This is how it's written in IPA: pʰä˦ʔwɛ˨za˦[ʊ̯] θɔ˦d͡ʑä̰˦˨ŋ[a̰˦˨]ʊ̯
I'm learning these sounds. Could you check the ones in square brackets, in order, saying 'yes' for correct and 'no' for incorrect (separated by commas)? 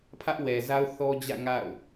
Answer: yes, yes